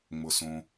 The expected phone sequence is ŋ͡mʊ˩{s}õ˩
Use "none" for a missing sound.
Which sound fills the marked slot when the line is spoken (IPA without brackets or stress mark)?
s